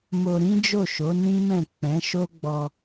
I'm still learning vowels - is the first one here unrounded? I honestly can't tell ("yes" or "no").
no